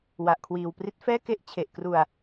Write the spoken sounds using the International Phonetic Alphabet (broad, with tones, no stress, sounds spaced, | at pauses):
w a˨˩ ʔ kʰ w iː˨˩ w p r i˦˥ t̚ f ɛː˥˩ k e˦˥ ʔ t͡ɕʰ e˨˩ ʔ k r u˧ a̯